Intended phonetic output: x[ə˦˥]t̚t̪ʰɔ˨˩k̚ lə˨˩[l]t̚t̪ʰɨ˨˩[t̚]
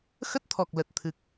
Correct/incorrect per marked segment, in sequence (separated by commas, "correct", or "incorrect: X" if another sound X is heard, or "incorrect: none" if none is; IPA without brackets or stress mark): correct, incorrect: none, incorrect: k̚